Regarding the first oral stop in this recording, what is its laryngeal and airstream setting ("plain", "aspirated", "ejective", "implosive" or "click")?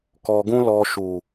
plain